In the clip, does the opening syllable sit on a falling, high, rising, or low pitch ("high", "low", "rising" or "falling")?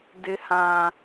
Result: high